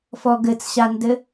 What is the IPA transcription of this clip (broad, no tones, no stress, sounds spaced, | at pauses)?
f ɔ ɡ ɘ t͡s ɕ a n d ɘ